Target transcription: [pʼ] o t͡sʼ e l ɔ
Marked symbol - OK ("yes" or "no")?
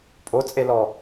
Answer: yes